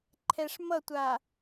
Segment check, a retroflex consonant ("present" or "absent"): present